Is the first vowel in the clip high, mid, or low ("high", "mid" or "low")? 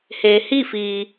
mid